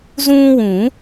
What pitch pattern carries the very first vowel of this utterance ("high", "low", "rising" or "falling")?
high